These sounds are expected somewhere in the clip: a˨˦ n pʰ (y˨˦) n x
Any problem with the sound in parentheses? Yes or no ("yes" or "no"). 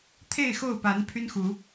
yes